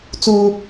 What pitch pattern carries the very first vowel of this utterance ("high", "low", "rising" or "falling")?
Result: high